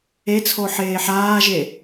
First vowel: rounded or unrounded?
unrounded